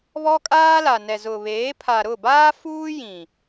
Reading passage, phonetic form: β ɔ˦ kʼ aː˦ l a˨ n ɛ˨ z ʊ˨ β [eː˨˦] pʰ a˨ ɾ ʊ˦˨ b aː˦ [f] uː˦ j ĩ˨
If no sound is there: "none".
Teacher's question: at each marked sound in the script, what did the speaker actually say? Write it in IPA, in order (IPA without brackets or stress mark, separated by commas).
eː˨˦, f